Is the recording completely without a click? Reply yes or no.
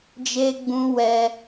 yes